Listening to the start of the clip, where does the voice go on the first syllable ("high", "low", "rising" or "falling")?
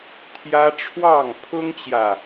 high